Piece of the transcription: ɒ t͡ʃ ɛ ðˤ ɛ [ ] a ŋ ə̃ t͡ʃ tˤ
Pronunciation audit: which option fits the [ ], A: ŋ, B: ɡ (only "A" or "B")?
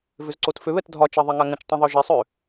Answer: A